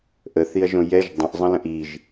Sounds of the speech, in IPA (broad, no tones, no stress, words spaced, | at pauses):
ʔəθiɐ̯ʒõ jɛʒ dˤə̃ʔzˤə̃lə̃ʔ iʒ